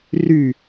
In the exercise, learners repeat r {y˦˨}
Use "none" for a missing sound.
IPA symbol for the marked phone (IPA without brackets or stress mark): y˦˨